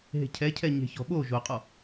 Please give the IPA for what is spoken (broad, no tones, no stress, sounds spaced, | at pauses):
ɦ e̤ cʰ ɛ cʰ ɛ ɲ e̤ ç ɔ̤ ɓ o ʒ o qʼ ɔ